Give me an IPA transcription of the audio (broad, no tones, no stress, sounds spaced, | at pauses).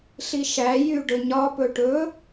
ɬ i ʃ æ j y ɖ ɵ ɲ ɒ p ɵ ʈ ɵ